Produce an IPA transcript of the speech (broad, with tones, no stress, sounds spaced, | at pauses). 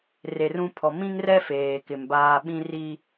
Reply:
r e˨ r ũ˦ pʰ ɔ˨ m ĩ˦ ŋ r ɛ˦ f eː˨ k ɪ˨ m b aː˦ ɓ ĩ˦ r i˦